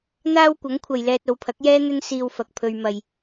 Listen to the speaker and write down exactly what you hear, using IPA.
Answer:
n̪ aː˥ w kʷ ɐ˨˥ ŋ kʷʰ ɐ˨ j l ɛː˧ t̚ o˨˧ w pʰ ɐ˨˥ k̚ j ɛː˥ n̪ ɵ˥ n s iː˧ w f ɐ˨ k̚ pʰ ɵ˧ ɥ m ɐ˨ j

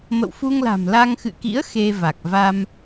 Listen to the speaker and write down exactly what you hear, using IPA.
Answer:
m ə̰˧˨ w f u˧ ŋ l a̤˨˩ m l a˧ ŋ x ɨ̰˧˨ k ḭ˧˥ ə̯ x e˧ v a˨˩ k̚ v a˧ m

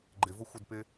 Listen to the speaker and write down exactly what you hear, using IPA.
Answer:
ɡ͡ǃ ɪ v ʊ xʷ ɪ d p ɪ

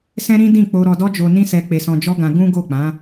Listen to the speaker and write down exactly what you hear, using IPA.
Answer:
s ɛ̃˦ ɾ ĩ˦ d ĩ˦˨ k͡p o˧ ɾ ɔ˧ d ɔ˦ d͡ʒ o˧ n ĩ˦ s ɛ˧ k͡p e˧ s ɔ̃˧ d͡ʒ ɔ˦ ɡ ã˧ ɡ ũ˦ ɡ o˦˨ k͡p ã˨˦

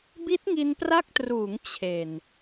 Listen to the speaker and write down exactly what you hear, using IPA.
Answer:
b i˦˥ t̚ ŋ i˧ n p r a˦˥ k̚ t r uː˩˦ ŋ t͡ɕʰ e˨˩ n

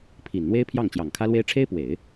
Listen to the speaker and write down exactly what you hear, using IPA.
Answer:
pʰ i˨˩ n n̪ w e˥ ɪ̯ pʰ j ɑ˥˩ ŋ t͡ɕ j ɑ˨˩ ŋ kʰ ä˥ l w e˥ ɪ̯ ʈ͡ʂʰ e˥ ɪ̯ p w e˨˩˦ ɪ̯

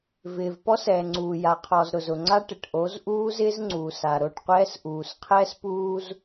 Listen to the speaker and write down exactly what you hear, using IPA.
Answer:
v ɪː˨ v p ɔ˦ s ɛː˨ ŋ͡ǀ uː˨ j a˨ qʰ ɔ˨ z ɾ ʊ˨ z ʊ˨ ŋ͡ǀ a˦ ʈ ɪ˨ ʈ ʔ o˨˦ z ʔ uː˦ z ɪː˦ z ŋ͡ǀ uː˨ s a˨ ɾ o˦˨ ʈ qʷ ɛː˦ s ʔ uː˨ s qʰ ɛː˦ s p uː˦ z

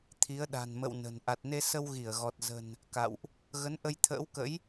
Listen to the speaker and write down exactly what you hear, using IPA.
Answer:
t̪ʰ i˨˦ ə̯ ɗ a̤˨˩ n m ə̰˧˨ w n ə̤˨˩ n ʔ a˨˩ t̚ n e˧ s ə˧ w ɣ i˧˩ ə̯ ɣ ɔ˨˩ t̚ z ə̤˨˩ n | k a̰˧˨ w ʔ | ɣ ə˨˦ n ʔ ə˧ j t̪ʰ ə̰ː˧˥ w k ə̰˧˥ j

